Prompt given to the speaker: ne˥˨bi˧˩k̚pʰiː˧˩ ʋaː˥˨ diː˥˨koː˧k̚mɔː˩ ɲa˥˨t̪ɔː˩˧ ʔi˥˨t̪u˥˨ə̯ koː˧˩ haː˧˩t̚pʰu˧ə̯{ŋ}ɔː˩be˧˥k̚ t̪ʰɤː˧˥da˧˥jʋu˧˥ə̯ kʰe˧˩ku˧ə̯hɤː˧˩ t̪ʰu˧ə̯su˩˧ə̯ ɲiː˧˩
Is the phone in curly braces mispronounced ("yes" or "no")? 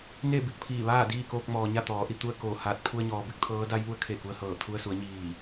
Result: yes